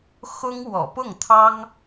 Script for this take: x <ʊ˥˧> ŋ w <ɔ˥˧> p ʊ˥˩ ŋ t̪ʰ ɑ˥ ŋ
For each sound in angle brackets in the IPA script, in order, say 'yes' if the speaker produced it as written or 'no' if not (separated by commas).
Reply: no, no